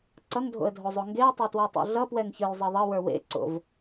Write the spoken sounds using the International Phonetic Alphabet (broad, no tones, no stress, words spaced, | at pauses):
ǀʌŋdʱo̰ə̯dʱozˤo ŋɡeə̯tˤə˞twɔtˤo̰ ɮʌpwɛŋçə˞jzˤʌ ðˤʌwə˞ wḛǀo̰v